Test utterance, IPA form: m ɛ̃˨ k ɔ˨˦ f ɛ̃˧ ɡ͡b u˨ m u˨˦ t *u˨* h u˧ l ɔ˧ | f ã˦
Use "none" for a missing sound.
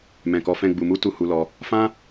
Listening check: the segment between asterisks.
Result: u˦˨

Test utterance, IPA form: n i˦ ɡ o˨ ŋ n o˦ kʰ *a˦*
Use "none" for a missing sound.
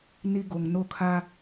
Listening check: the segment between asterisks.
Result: a˦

